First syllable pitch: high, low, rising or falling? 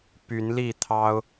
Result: rising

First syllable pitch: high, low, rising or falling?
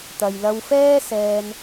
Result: low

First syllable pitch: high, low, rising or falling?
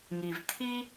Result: low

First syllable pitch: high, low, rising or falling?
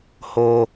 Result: low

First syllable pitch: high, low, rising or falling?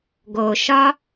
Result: low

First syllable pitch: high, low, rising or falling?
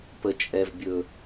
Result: low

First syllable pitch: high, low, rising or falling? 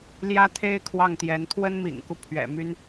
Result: high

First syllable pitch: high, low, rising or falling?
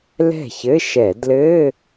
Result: falling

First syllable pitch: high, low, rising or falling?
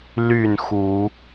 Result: falling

